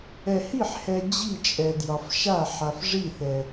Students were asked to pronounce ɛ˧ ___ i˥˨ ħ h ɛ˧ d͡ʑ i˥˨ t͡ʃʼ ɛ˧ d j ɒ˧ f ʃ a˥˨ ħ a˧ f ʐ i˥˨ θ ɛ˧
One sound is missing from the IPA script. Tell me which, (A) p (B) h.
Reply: B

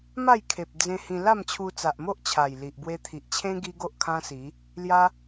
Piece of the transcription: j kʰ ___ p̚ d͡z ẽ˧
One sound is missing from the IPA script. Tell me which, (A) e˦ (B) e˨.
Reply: B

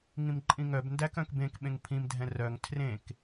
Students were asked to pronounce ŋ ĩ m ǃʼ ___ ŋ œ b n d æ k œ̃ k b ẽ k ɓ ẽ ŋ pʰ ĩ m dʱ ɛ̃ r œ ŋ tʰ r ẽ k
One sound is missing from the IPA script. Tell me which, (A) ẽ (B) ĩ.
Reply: B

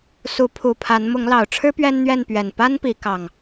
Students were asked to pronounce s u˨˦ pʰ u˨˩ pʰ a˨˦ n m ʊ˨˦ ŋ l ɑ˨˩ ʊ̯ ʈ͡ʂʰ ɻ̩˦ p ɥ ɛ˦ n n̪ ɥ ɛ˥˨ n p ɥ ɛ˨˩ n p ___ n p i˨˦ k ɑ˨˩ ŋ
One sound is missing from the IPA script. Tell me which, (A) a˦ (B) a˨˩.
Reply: A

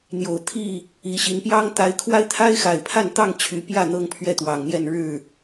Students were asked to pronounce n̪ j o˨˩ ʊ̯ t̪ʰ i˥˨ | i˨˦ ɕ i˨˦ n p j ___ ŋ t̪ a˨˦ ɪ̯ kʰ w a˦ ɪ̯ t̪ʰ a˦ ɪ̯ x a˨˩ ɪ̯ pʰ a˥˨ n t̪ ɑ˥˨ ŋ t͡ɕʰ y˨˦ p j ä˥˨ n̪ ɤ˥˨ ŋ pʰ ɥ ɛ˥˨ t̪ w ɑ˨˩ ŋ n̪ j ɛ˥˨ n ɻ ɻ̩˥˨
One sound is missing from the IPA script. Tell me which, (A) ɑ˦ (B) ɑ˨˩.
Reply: A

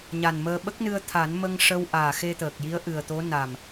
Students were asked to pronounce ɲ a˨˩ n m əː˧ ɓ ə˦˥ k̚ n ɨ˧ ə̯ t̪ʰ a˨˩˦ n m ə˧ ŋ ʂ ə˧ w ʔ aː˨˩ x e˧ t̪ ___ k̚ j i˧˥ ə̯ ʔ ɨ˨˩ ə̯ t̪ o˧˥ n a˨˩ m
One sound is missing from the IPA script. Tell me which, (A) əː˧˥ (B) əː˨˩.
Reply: B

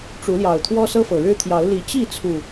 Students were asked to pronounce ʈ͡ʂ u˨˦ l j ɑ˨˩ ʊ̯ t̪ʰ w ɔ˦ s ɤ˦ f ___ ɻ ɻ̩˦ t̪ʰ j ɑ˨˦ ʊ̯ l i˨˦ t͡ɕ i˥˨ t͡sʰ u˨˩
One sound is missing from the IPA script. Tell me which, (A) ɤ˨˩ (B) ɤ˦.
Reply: A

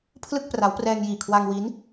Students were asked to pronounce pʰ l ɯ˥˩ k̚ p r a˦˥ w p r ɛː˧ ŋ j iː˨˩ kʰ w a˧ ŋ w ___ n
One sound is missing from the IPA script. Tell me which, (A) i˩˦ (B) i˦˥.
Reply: B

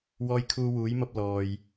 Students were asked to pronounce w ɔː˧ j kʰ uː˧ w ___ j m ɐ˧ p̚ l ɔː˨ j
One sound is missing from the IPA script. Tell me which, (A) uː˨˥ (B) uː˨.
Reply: A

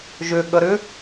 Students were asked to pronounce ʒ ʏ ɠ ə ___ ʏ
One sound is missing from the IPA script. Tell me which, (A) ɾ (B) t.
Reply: A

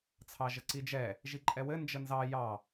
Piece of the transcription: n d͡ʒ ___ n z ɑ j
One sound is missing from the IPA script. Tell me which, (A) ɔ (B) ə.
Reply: B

